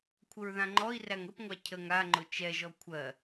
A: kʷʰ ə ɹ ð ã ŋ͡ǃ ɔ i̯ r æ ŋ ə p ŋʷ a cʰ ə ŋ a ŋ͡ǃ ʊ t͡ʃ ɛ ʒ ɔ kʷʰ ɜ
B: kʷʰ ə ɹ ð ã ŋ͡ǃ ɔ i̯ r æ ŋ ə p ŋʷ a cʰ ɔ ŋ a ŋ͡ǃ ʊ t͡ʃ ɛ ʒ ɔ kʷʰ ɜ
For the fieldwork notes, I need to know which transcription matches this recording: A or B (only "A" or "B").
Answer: A